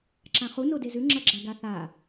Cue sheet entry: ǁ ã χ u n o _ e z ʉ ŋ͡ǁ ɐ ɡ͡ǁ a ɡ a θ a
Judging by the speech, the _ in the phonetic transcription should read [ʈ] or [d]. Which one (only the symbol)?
d